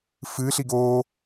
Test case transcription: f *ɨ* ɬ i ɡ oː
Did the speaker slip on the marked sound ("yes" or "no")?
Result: no